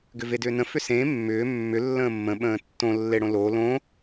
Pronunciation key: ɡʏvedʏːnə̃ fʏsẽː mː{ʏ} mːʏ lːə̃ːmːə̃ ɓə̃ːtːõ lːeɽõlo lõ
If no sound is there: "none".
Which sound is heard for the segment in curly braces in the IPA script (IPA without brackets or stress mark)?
ʏː